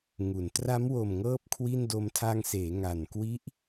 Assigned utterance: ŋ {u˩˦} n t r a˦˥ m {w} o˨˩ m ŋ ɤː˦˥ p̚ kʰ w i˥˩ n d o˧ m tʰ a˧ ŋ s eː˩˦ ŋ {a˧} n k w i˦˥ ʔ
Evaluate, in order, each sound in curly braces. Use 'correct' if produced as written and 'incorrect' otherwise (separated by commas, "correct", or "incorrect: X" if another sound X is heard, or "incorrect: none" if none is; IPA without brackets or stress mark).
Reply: correct, correct, incorrect: a˨˩